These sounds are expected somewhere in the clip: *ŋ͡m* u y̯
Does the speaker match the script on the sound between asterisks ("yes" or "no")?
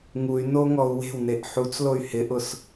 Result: no